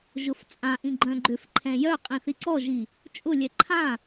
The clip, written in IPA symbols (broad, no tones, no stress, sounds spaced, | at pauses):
ʒ ʊ f t͡sʼ ã ʔ ĩ ɡ͡ǃ œ̃ ɡ͡ǃ ʏ f ǃʰ ɛ̃ j œ qʼ ĩ θ i ǀ ɔ ʒ i | t͡ʃʼ ʊ lʲ ɛ ǃʰ ã